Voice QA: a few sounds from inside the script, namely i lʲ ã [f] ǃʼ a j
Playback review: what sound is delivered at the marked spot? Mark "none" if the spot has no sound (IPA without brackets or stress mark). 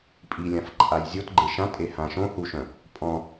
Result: f